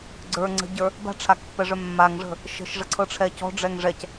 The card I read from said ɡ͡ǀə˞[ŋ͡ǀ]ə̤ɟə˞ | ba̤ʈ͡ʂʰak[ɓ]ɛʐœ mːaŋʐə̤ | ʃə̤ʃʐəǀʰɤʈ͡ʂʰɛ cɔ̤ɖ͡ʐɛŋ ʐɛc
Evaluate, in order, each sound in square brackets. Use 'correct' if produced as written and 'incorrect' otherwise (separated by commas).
correct, incorrect